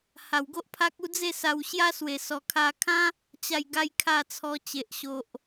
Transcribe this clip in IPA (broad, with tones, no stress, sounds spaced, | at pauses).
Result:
h a˨˩ w ɡ o˦ ʔ pʰ a˦ k̚ u˥˧ d͡z e˥˧ s a˧ w ɕ j a˦ s w e˨˩ s ɔ˨˩ kʰ a˧ kʰ ã˦ | t͡ɕ a˥˧ j ɡ a˦ j kʰ a˥˧ t͡sʰ ɔ˧ t͡ɕ e˨ ʔ ɕ o˨ ʔ